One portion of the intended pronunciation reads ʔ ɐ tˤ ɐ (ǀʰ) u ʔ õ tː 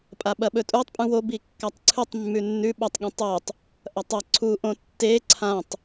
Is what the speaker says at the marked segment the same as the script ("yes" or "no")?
yes